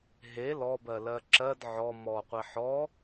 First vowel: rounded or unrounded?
unrounded